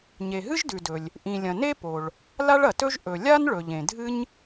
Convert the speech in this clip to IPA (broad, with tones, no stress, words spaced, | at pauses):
ɲe˩ɦɨ˥ʒdʉ˩dɵ˩lʲ | ʔĩ˩lʲɐ̃˩ ne˥po˩ɭ | la˥ɭɐ˩tɵ˥ʒ ʔɵ˩ lʲa˥n ɭɵ˩ʎẽ˩ dʱɨ˥ɲ